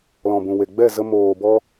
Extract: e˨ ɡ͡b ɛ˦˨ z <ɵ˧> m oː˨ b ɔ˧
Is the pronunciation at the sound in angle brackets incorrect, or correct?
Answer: incorrect